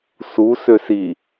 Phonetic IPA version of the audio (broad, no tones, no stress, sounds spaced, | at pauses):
s u s ø s i